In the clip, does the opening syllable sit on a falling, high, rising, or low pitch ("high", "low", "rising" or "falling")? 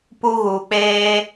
high